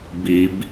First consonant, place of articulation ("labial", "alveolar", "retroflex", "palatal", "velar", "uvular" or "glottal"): labial